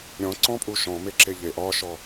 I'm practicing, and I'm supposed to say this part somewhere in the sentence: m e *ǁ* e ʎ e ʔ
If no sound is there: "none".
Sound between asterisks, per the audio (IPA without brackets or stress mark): ǁ